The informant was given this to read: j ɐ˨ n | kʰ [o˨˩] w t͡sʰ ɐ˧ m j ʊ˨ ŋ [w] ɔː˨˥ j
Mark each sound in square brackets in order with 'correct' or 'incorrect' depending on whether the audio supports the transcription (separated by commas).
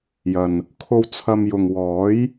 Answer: incorrect, correct